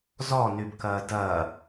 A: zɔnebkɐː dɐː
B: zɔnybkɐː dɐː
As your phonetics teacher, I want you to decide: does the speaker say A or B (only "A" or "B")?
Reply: B